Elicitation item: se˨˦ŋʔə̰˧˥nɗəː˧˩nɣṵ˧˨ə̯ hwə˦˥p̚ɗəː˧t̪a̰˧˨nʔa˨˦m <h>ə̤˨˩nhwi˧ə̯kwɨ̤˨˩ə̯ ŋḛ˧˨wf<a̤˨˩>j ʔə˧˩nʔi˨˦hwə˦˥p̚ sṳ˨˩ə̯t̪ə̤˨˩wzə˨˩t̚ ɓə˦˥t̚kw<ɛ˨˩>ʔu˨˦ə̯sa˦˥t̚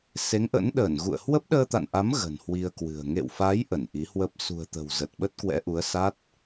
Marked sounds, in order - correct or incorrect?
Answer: incorrect: ɣ, incorrect: a˨˦, incorrect: ɛ̰˧˥

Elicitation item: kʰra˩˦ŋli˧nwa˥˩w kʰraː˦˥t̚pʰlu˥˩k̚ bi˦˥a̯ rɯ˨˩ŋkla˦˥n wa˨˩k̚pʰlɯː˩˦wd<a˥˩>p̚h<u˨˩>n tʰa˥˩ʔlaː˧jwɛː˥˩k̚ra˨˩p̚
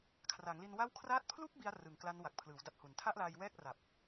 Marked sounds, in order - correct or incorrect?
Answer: incorrect: a˦˥, correct

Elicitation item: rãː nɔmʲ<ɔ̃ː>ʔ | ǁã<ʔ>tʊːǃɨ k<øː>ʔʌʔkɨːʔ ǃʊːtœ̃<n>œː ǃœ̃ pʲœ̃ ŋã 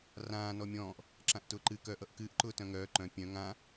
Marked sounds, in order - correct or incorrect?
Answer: correct, correct, incorrect: œː, incorrect: ŋ

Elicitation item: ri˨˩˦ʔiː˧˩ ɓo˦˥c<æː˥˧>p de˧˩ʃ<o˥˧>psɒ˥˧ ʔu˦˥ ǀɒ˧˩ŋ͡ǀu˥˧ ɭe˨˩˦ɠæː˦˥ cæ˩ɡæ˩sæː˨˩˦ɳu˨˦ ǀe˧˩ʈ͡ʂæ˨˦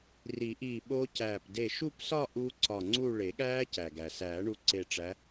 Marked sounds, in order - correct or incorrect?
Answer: incorrect: æː˧˩, incorrect: u˥˧

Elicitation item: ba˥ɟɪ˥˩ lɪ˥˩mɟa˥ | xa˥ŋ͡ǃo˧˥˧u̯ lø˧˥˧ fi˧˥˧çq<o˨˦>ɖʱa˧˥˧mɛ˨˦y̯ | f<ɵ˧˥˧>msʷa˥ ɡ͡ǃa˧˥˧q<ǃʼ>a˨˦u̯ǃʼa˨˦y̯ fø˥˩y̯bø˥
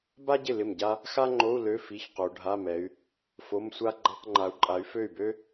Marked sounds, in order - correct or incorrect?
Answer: correct, incorrect: o˧˥˧, incorrect: ŋ͡ǃ

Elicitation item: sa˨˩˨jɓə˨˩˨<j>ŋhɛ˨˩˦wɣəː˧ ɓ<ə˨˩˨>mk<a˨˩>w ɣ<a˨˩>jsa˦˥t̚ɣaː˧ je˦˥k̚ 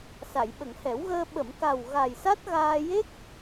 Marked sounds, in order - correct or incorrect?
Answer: incorrect: none, correct, correct, correct

